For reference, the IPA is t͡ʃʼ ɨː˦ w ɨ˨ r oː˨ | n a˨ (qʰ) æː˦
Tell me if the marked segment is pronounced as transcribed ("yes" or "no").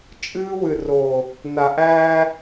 no